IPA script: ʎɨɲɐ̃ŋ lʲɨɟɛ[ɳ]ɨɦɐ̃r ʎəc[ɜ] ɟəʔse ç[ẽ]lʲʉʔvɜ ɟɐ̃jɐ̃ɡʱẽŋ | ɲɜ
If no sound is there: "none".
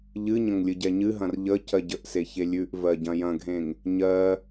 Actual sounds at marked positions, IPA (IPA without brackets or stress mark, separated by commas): ɲ, ɜ, e